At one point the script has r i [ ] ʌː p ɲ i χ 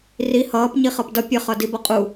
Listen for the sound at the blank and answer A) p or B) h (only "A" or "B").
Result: B